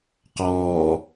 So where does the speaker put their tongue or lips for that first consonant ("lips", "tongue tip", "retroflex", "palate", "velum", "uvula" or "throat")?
uvula